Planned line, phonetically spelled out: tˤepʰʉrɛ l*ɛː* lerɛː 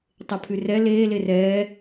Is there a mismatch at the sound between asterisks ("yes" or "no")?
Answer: yes